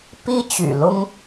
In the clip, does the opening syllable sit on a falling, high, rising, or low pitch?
high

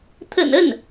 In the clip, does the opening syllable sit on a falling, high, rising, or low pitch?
low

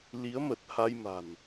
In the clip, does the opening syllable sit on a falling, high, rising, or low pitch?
rising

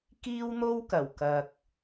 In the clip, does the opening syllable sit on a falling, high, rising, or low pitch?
high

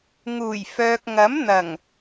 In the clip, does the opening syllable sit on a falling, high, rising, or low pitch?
low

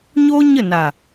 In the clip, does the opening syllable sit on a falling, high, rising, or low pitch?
high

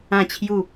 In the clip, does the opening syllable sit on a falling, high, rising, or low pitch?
falling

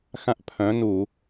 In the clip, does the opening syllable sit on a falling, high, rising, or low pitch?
high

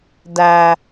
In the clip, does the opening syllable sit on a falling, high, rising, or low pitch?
high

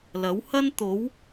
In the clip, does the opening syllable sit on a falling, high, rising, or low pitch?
rising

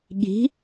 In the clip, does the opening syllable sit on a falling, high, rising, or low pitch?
rising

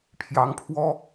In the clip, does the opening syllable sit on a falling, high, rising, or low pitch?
rising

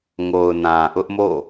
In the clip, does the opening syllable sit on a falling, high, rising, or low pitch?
low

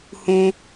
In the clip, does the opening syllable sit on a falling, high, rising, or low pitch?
low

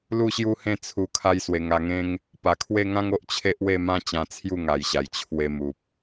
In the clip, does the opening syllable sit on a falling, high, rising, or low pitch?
falling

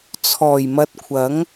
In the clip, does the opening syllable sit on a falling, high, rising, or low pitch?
low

